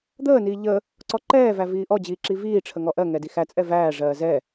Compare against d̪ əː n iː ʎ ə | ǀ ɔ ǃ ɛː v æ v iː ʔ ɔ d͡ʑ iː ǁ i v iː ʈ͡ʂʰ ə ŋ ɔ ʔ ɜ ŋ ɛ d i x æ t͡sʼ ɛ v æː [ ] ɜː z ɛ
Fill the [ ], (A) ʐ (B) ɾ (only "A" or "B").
A